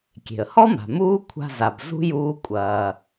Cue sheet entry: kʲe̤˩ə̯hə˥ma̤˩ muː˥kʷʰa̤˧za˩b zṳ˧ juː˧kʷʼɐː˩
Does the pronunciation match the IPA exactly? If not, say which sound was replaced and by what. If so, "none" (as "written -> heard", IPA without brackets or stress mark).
ə˥ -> ɔ˥